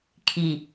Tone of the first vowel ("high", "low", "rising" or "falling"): low